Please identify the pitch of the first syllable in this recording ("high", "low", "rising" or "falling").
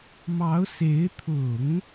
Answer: rising